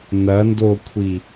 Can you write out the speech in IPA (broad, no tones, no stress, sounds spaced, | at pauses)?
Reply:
n ɐ n d o kʷʰ i